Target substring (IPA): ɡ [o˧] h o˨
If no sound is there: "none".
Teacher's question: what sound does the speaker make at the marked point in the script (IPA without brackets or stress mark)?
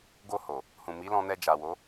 o˧